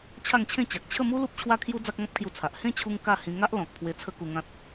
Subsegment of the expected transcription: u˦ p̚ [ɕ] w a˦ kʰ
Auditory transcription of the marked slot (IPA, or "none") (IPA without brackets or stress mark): t͡ɕʰ